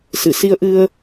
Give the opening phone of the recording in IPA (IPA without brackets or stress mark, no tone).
s